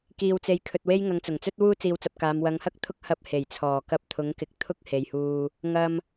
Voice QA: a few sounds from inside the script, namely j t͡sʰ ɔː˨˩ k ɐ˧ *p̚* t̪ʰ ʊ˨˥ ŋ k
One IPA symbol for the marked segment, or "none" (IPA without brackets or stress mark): p̚